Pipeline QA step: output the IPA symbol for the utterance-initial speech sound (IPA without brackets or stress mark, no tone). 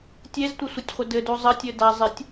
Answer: tʲ